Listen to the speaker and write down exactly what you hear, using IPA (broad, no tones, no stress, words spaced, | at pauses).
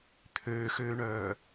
t̪ʰøːxøːɳœː